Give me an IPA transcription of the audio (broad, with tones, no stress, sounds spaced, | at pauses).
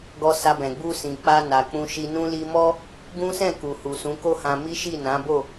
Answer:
ɡ ɔ˧ s a˧ b ɛ̃˨ ɡ͡b u˧ s ĩ˨ k͡p a˧ n a˨ k͡p ũ˧ ʃ i˧ n ũ˧ l i˧ m ɔ˦ | ɡ ũ˦ s ɛ̃˦˨ k u˨ h u˨ s ũ˨˦ k o˦ h ã˧ m i˦ ʃ i˦˨ n ã˨˦ b o˦˨